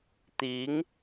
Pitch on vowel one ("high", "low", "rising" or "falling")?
rising